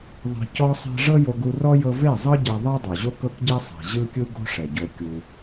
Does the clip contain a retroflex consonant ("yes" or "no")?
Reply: yes